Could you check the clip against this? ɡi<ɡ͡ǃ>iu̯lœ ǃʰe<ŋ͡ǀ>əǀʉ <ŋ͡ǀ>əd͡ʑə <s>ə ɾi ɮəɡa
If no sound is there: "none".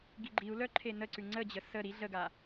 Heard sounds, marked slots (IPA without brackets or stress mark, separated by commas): ɡ͡ǃ, n, ŋ͡ǀ, s